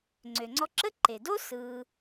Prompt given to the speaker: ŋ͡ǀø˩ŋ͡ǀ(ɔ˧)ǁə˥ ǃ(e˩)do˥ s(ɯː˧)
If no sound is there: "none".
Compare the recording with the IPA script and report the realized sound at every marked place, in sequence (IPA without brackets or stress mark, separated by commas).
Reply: ɔ˧, e˩, ɯː˧